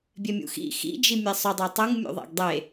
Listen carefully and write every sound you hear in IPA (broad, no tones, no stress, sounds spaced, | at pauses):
bʲ e mʲ ṵ x ḭ x ḭ d͡ʒ i mʲ e sˤ ø dˤ e tˤ u ŋ mʲ ṵ ðˤ æ̰ ɡ dˤ e